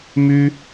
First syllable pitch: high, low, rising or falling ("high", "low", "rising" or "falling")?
high